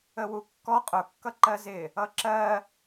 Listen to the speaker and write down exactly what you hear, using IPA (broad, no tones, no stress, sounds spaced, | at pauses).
ə w u kː ɔ qʼ ʊ kː ʌ ǃ ɜ z ɪ | ʌ ǁ ɜ